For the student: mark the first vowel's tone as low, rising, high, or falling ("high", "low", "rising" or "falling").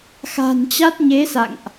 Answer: low